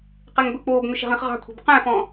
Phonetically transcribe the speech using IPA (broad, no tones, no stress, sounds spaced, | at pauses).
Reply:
q ɛ ŋ b ɵ k͡p oː b ŋ ɵ ʃ ɛ̤ ʁ ĩ χ ʁ ɑ̤ kʷʰ ɛ̤ b q æ̃ f ɔ̃